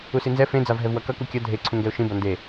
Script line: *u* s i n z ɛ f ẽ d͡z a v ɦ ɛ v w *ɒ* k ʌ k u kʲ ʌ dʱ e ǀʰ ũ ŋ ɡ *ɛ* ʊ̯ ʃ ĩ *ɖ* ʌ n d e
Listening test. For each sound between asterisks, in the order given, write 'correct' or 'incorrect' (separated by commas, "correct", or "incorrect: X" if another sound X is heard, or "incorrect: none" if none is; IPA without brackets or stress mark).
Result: correct, incorrect: ʌ, correct, incorrect: b